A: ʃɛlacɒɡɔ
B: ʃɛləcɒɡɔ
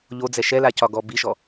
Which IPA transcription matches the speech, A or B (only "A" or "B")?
A